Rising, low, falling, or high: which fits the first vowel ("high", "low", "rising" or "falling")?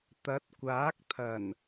rising